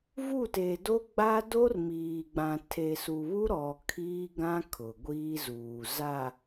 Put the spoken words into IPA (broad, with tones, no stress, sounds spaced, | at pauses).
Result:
v u˦˨ t e˨ d o˦ ɡ͡b a˦ d o˦ r m iː˨ ɡ͡b ã˨ tʰ e˨ s u˨ β u˦ ɾ ɔ˨ kʰ iː˦ ɡ ã˦ kʰ ʊ˨ ɡʷ iː˦ z uː˨ z a˨